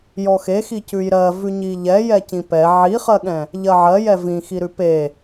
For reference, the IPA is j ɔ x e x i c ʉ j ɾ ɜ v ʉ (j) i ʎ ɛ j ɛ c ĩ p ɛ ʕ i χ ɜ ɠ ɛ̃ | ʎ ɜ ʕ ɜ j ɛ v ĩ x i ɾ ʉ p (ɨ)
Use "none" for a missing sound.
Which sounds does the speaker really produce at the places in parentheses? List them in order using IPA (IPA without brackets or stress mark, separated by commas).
ɲ, e